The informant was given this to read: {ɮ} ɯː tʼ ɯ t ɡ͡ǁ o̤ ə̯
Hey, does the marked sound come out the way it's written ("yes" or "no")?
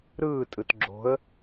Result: no